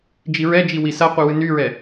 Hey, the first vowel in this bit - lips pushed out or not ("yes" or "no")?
no